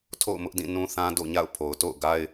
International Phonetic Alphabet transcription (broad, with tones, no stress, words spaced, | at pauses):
tʰo̰˦˨ʊ̯mʊ˦ʔdĩ˦˨ nũ˦θã˦ do̰˦˨ɲa̰˦˨ʊ̯pʰo˨ʊ̯to̰˦˨ʊ̯ ɡa˦ɪ̯